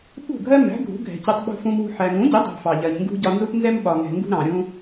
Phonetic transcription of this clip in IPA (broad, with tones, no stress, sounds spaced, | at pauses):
ɓ ṳ˦˨ ɡʱ ɜ˦ m æ̤˨˦ ɡʱ ṳ˨˦ ɡʱ ɛ̤˨ c ɪ˧ tˤ ɓ ṳ˧ f ũ˧ m w ṳ˧ ħ æ˨ ŋ ũ˨˦ ɟ ɪ˨˦ dˤ æ̤˧ f ɑ˨ ʎ ɜ˨ ɲ ŋ ɡ ṳ˦ ɟ ɒ˧ n z u˦ t n z ɛ˦ m ɓ ɒ˨ ŋ ɛ̤˨ ŋ ɡ ṳ˧ ɾ ɑ̃˨ ɾʲ ũ˦